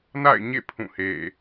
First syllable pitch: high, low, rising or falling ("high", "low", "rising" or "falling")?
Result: falling